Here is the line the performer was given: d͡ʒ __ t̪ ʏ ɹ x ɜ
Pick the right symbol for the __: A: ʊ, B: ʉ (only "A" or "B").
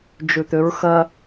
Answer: B